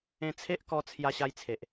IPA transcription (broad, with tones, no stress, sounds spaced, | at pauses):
ẽ˧ t͡sʰ e˦ ʔ k ɔ˧ t͡sʰ j a˧ ɕ a˧ j t͡sʰ e˨ ʔ